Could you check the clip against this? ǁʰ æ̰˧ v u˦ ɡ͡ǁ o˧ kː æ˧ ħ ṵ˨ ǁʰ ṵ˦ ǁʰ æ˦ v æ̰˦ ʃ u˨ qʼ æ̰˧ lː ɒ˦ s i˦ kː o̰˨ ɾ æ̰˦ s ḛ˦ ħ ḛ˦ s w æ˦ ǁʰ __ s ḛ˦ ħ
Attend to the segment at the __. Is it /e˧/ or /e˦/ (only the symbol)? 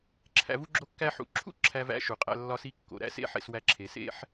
e˧